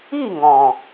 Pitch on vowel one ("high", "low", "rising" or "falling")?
falling